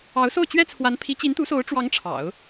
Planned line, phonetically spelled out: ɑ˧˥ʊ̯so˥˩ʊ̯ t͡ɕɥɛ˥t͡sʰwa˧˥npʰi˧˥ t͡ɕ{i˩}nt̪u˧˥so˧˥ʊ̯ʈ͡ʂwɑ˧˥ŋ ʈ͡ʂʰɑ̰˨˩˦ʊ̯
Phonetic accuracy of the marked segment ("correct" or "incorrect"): incorrect